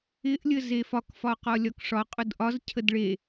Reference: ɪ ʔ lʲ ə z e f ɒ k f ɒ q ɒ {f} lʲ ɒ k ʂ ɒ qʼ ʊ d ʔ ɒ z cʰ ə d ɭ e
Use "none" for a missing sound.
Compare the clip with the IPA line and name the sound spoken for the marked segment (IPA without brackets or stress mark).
none